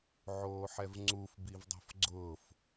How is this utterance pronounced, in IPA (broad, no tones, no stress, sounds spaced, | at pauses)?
ʕ oː ħ ɛ v ŋ͡ǀ u f b i v dˤ o̤ f ɡ͡ǀ ʊː f